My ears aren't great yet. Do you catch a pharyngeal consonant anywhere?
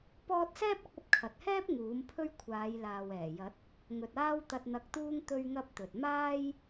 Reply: no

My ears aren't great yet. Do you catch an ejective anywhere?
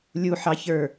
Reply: no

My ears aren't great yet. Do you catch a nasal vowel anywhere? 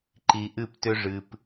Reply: no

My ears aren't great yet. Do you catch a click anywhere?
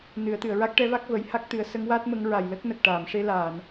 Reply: no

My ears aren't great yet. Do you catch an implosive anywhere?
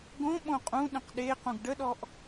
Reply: yes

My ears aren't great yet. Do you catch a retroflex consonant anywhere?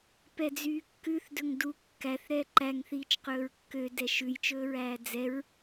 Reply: no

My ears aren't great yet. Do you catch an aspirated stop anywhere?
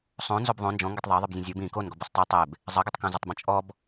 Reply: no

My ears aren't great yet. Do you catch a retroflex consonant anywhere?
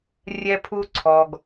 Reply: no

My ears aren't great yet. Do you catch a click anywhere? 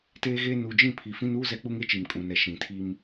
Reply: no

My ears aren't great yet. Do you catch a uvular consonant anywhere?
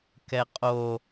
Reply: yes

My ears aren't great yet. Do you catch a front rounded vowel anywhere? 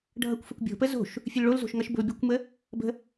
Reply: no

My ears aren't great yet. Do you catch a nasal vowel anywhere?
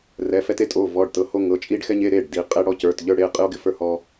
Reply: no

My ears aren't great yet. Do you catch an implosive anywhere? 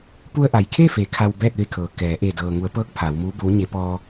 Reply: no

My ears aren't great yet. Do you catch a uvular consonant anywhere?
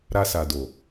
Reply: no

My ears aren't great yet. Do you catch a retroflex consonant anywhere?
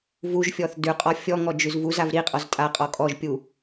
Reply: no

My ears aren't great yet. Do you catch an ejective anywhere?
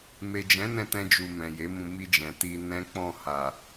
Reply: no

